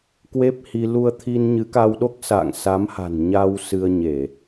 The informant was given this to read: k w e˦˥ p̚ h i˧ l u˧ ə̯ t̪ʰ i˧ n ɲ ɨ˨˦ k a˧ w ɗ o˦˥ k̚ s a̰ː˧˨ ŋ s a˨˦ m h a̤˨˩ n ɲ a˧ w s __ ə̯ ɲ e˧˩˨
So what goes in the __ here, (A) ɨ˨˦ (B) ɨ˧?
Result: B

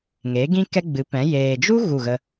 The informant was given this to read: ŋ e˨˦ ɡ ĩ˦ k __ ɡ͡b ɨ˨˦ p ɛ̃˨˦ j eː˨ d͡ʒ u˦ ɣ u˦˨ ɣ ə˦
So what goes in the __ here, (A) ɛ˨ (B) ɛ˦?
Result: B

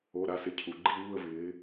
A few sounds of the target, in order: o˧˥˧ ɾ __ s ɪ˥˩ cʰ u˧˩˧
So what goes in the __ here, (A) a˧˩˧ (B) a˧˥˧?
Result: B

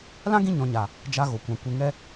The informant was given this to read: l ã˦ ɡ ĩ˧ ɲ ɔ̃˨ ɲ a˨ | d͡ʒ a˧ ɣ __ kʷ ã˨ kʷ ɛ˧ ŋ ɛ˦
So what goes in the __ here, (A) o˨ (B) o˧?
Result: A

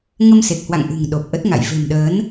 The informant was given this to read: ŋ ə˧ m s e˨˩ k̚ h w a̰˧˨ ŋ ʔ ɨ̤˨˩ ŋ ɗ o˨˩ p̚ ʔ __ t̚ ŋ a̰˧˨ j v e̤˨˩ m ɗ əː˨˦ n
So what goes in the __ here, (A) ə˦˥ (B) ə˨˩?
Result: A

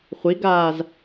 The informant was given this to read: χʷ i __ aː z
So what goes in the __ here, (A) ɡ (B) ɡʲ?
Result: A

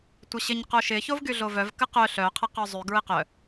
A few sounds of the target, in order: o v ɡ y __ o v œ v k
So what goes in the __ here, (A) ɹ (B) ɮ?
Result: B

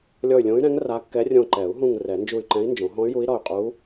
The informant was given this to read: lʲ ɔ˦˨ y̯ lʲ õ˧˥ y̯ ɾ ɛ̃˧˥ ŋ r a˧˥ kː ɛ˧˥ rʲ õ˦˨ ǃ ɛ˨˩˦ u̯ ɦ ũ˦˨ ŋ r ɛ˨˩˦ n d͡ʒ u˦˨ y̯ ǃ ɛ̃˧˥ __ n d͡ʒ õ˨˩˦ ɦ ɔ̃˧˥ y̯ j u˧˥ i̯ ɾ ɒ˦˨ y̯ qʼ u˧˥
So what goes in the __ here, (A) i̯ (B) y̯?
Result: A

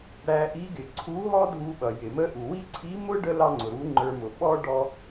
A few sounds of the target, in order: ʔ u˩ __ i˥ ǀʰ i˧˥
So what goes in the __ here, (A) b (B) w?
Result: B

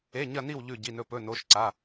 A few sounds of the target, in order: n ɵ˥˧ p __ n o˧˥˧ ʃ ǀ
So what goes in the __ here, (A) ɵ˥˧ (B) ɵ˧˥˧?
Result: B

